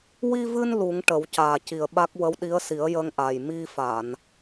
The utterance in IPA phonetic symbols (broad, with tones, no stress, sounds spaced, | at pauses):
w i˧ v ɨ˧ n l u˨˩˦ ŋ ʈ ə˨˩˦ w c aː˨˩ c i˨˩ ə̯ ɓ a˦˥ k̚ w ə˧˥ w ɗ i˧˥ ə̯ s i˨˩˦ ə̯ j ə˧ ŋ ʔ a˨˩ j m i˧ f a˨˩˨ n